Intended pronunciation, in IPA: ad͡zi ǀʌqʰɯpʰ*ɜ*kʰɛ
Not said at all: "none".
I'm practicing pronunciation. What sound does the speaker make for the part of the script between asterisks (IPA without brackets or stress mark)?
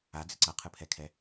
ɛ